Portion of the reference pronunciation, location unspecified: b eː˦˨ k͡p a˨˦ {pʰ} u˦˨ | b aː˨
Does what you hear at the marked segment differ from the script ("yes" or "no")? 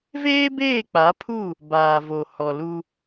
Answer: no